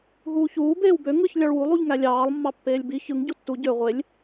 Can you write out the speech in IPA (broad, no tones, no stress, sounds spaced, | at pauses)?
ɦ uː ç uː b eː w b ø ŋ ɯ ç lʲ ɑ ɭ w u lˠ u ʎ ŋ æ lʲ ɑː lˠ mː ɑ pː eː lʲ b i ç ɯ ŋ ɟ u tː u ɟ ø ʁʷ e lʲ